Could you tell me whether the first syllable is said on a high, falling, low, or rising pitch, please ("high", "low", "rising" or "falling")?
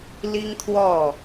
high